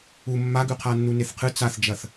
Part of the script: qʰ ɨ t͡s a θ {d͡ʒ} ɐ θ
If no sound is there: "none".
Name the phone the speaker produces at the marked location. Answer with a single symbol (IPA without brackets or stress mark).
d͡ʒ